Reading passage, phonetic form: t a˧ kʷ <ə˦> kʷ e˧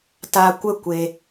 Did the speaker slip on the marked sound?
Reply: no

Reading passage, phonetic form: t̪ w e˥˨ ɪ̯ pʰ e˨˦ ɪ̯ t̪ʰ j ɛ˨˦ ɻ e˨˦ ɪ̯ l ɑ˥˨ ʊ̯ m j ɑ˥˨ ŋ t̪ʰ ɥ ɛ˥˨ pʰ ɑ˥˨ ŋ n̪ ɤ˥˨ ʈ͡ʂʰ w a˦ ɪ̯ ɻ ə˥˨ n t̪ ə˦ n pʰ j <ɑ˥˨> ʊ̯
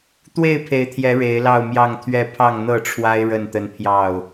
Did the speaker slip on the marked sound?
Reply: no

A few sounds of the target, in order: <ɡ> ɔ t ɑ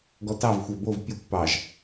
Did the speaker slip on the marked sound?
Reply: no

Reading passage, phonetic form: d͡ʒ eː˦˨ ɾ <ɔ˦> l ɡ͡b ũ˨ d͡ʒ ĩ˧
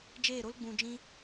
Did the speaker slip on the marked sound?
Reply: yes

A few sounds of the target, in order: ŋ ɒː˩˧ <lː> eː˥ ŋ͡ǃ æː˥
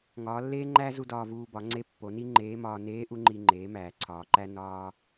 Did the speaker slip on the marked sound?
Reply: no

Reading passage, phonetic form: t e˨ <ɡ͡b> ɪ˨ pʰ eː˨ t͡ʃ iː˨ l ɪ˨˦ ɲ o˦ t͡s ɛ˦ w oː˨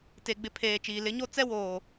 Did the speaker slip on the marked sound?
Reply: no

